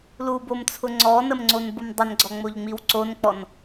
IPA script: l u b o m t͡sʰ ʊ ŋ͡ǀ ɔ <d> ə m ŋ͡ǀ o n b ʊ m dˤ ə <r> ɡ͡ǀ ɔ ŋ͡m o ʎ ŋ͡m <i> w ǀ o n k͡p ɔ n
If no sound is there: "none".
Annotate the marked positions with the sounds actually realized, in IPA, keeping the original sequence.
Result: n, n, i

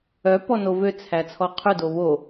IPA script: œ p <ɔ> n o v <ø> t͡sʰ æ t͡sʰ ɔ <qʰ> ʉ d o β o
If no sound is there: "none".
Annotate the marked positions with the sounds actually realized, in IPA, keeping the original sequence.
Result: ɔ, ø, qʰ

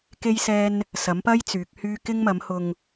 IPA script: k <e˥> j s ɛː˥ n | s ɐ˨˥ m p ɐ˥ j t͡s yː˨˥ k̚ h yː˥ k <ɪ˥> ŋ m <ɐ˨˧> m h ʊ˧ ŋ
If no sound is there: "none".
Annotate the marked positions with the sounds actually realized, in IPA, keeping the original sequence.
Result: e˥, ɪ˥, ɐ˨˥

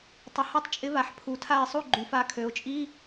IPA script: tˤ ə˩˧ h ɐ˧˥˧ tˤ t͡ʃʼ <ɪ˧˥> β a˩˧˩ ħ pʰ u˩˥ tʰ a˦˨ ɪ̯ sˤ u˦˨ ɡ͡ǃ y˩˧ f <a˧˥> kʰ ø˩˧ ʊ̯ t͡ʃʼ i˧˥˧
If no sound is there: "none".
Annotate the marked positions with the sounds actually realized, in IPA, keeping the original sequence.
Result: ɪ˧˥, a˧˥

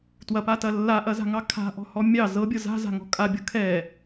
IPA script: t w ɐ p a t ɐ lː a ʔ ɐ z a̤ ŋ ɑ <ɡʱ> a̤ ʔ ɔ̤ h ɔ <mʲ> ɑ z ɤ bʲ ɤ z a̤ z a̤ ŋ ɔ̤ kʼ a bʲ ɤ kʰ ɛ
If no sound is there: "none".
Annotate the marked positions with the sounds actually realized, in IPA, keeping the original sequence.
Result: kʰ, mʲ

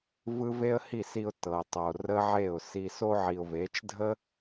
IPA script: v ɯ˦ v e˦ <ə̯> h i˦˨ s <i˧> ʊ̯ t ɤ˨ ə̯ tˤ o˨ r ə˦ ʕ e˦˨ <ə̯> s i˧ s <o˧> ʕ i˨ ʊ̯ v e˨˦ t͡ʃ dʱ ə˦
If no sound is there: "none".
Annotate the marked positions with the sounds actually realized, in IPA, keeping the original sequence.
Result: ə̯, i˧, ʊ̯, o˧

